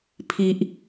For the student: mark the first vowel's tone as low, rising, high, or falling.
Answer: low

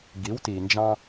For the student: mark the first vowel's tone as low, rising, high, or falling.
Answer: rising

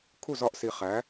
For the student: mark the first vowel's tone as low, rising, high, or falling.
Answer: falling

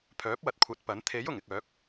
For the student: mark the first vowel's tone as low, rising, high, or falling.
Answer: rising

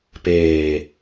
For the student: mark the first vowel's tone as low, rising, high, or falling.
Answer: low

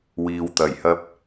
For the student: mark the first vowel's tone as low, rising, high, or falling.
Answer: low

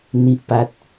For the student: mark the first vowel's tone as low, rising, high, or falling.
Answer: low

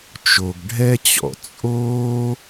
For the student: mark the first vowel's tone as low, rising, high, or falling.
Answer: low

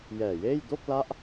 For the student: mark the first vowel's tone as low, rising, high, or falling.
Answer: low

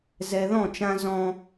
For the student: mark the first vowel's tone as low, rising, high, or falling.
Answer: low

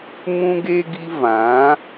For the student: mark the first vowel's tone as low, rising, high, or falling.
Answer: high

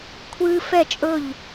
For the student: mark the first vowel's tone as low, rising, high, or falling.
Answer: high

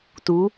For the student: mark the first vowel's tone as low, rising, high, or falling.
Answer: rising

